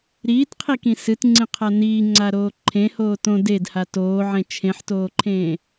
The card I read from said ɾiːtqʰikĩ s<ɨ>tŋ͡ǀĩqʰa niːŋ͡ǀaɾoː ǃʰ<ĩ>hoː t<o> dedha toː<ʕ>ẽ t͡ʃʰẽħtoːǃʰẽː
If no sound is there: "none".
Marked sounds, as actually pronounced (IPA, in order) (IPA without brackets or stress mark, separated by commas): ɨ, ẽ, õ, ʕ